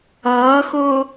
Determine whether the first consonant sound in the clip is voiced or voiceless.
voiceless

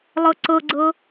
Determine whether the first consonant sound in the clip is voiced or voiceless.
voiced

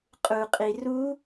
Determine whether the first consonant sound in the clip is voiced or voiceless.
voiceless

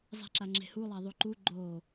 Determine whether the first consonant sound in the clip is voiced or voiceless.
voiced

